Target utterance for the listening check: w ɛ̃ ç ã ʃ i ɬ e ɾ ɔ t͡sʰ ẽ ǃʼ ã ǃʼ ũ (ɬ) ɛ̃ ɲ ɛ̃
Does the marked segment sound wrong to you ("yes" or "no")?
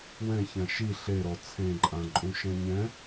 yes